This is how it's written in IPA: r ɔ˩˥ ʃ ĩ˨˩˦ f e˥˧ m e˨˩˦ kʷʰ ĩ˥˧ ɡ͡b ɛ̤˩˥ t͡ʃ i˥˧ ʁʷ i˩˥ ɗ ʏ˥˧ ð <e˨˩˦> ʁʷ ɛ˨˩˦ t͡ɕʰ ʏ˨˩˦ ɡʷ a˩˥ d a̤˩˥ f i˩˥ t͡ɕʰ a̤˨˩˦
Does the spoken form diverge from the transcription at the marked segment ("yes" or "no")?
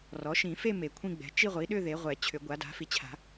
yes